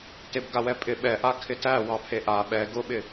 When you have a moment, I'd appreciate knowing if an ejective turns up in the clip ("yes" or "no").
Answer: yes